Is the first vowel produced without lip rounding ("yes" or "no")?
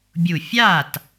no